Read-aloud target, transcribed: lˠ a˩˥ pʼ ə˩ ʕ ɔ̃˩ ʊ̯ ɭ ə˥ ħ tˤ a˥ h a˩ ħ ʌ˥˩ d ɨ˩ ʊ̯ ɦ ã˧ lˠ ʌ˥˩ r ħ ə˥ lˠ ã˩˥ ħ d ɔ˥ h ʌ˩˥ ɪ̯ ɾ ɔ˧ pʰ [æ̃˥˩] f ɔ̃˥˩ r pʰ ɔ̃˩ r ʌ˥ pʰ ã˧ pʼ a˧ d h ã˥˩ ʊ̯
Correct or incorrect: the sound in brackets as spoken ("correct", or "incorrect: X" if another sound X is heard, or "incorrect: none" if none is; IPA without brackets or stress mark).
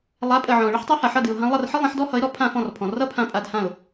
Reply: incorrect: ã˥˩